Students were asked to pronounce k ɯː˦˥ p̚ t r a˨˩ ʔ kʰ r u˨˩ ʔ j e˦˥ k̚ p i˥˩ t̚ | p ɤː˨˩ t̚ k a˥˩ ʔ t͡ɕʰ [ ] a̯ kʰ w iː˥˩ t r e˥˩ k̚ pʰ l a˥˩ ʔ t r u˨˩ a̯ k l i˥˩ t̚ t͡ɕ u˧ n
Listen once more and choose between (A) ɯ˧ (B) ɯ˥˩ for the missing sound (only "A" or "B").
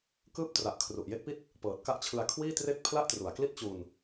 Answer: A